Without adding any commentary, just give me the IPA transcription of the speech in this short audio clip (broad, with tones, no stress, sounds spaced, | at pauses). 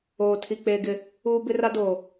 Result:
oː˨ tʰ i˨ k͡p eː˨ ɡ ɪ˨ | uː˦ b ɪ˦ r a˦ d oː˨